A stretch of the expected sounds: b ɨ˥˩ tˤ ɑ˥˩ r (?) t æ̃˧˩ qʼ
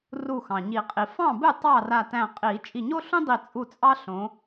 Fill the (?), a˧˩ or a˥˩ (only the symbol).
a˧˩